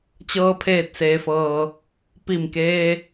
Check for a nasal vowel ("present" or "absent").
absent